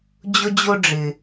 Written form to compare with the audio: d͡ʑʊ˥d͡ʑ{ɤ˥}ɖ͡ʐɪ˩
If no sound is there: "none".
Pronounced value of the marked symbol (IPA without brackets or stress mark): o˥